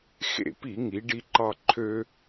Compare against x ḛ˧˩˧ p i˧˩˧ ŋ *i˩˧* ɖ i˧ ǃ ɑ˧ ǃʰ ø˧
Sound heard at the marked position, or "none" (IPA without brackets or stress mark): i˩˧